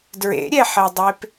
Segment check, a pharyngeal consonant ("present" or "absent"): present